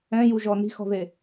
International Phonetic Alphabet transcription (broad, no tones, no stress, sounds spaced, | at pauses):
ɛ̃ j u ʒ ɔ n i̤ x ɔ̤ ð e